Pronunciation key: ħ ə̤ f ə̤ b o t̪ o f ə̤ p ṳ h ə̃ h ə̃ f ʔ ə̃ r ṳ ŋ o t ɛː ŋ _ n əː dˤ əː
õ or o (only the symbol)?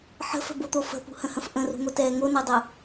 o